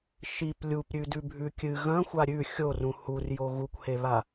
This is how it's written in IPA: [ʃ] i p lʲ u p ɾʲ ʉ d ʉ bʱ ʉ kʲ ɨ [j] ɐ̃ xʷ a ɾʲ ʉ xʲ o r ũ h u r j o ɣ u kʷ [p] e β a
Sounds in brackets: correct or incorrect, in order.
correct, incorrect: ɣ, incorrect: h

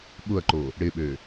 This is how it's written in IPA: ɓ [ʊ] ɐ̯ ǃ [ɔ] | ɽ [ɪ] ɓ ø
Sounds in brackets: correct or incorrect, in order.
correct, incorrect: o, correct

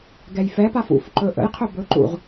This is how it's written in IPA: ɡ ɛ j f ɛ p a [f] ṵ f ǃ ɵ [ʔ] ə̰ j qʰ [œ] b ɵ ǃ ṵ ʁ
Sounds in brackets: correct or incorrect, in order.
correct, correct, incorrect: ɵ

